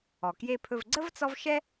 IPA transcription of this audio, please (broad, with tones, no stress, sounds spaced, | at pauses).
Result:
ɔ˩ k j e˧ pʰ ɵ˧ v ɡ͡ǀ ə˥ v t͡s ɔ˥ v ʃ ɛ˥